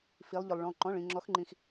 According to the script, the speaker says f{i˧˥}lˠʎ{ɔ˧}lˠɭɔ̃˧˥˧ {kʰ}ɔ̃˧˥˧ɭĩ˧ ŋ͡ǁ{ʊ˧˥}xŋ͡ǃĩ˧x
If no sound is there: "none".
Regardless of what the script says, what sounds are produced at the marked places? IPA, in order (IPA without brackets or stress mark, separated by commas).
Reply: i˧˥, ʊ˧, ǃ, ɔ˧˥